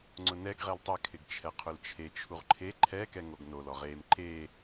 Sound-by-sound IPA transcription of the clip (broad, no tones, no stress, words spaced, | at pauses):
ŋ͡ǀʊnɛɡ ʁɛltˤɛ kʰɪɡt͡ʃʰɛqʰʊlt͡ʃʰe t͡ʃʰuʁǃʰe ǃʰɛ kɛŋoɡnol ɔʁem ǃe